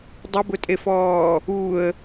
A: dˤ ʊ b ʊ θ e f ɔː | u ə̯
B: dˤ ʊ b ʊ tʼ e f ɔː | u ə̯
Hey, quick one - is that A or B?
B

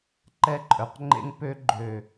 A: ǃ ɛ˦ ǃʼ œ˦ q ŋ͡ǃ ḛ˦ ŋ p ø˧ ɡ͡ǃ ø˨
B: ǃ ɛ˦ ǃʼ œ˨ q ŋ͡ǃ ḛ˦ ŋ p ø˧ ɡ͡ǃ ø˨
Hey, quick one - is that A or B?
B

